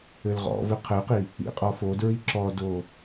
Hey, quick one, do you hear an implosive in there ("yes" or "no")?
no